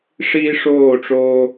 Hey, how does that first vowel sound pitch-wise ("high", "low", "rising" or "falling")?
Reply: high